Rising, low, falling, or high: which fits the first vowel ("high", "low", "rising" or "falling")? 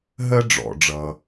high